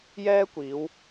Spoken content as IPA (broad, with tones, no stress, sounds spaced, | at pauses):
j ɛː˥ kʷ iː˨˧ w